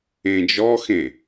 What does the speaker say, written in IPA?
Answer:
ẽ d͡ʒ ɔ x ẽ

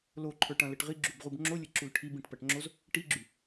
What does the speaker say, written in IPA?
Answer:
l o ǃʰ ə˞ ʈ ɐ̃ l ə ʈ ʁ i ɡ͡ǁ u b ʁ u b ŋ͡ǁ o lʲ ə ǁ u l ʈʰ i b ĩ ʈ p ɐ ʈ ŋ͡ǁ o z | ʈ i ɡ͡ǁ y

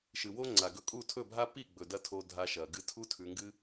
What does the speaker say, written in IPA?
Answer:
ʃ ɨ˨ w o˦ ŋ͡ǀ a˨ ɡ ɵ˧ kʼ u˦˨ tʰ ɵ˦˨ bʱ a˦ p i˦˨ ɡ͡b ɵ˨ d ɐ˧ tʰ o˧ dʱ a˧ ʃ ɐ˨ ɡ ɨ˧ tʰ u˦ tʰ ʉ˧ ŋ ɡ ɨ˦

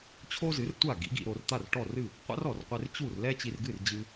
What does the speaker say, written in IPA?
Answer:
t͡ɕʰ o˥ z ɨ˩˥ r tʷ a˥˩ ɡ ḭ˩˥ ɡ ḭ˧ ɾ o˧ r t̪ a˥˩ r ʈ ɔ˥˩ r ɨ˥˩ | qʷ a̰˥ r ɔ˩ r qʷ e˧ r t͡ɕ u˥˩ r l ɛ˥ t͡ɕ i˧ r ɡ ɨ˥˩ r d͡ʑ ɨ˧

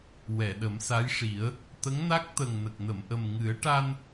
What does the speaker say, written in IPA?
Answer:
w ɛ˨˩˨ ɗ ə˨˩˦ m s a˧˥ j ʂ i˨˩˦ ə̯ | t̪ ə˧˥ ŋ n a˦˥ k̚ t̪ ə˨˩ ŋ n ə˨˩ k̚ n ə˨˩˨ m ʔ ə˨˩ m ŋ ɨ˨˩˦ ə̯ ʈ a˧ n

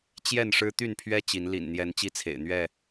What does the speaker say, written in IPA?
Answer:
t͡ɕ j ɛ˥˨ n ʂ ɻ̩˦ t̪ y˥˨ n pʰ ɥ ɛ˦ t͡ɕ i˨˦ n l ḭ˨˩ n n̪ j ɛ˨˦ n t͡ɕ i˦ t͡sʰ ḛ˨˩ ɪ̯ n̪ ɥ ɛ˥˨

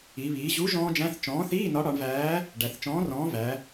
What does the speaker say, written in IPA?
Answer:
i˩˧ β iː˩˧ ʑ u˨˥ ʒ ɔ̃ː˦˥ d͡ʒ æ̃˧˥˧ θ t͡ʃ ɔ̃ː˨˥ θ iː˧˥˧ n ɒ˨˥ ɽ ɒ˩˧ ɳ v æː˨˥ | ɖ æ˩˧ θ t͡ʃ ɔ̃ː˨˥ r ɔ̃ː˨˥ v æ˩˧

